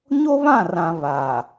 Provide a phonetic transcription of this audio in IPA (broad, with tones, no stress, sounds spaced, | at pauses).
ɲ o˦ β ã˦˨ r ã˨ β a˨